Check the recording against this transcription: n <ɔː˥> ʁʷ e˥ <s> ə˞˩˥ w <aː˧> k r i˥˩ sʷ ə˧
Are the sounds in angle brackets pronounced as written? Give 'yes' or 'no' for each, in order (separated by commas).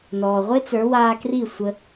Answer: no, no, yes